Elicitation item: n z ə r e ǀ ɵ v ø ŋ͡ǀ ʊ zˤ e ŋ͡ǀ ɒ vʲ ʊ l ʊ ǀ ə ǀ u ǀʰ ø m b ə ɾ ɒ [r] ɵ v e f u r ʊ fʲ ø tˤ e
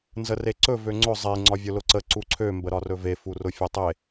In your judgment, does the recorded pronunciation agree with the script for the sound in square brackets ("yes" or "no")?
yes